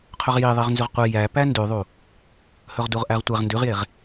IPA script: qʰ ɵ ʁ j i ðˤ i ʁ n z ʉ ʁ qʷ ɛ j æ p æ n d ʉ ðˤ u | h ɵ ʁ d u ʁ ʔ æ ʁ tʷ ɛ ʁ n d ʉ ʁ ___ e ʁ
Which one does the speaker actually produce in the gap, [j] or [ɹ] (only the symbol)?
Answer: j